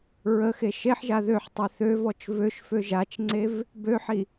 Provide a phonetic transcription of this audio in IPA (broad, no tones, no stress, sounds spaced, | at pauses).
ɹ ə x e ʃ e ħ ʒ a ð ø ħ tˤ ø θ ø v ɔ t͡ʃ v ø ʃ f ø ʒ a t͡ʃ ŋ͡ǀ e v | b ø ħ i